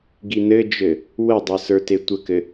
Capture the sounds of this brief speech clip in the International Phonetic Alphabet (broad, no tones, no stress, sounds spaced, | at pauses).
ɡ i n ɘ d͡ʒ ɘ | w ə dˤ ɘ s ə˞ t e tʷ ə k ɘ